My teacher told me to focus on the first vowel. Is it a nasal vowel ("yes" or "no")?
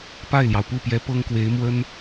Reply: no